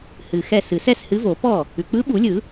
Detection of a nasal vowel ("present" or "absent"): absent